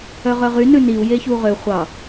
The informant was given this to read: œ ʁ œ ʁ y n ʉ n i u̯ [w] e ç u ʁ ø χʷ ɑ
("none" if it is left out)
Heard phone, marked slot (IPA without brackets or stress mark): j